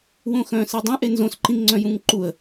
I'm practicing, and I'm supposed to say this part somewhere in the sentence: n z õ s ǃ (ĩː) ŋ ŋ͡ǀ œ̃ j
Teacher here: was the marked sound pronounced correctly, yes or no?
no